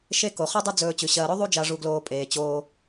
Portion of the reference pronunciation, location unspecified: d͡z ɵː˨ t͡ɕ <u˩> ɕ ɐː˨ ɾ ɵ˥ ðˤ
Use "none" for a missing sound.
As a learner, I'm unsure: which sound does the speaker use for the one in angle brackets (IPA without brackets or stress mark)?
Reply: ʉ˩